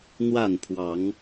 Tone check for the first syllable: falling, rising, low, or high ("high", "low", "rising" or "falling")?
falling